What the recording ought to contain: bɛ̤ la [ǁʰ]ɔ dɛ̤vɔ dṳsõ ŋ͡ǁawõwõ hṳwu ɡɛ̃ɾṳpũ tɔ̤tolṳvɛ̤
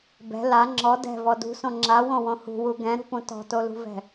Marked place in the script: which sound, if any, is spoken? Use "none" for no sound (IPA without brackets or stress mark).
ŋ͡ǁ